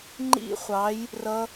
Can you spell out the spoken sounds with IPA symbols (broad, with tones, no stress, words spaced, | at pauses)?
ŋ͡ǃḭ˦˥χʷɑ˨˦j | rʌ˦˥